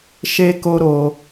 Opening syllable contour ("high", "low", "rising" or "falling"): high